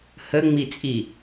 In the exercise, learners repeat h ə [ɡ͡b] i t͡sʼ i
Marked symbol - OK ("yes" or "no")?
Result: no